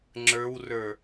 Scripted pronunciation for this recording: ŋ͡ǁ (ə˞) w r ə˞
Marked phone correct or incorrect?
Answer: correct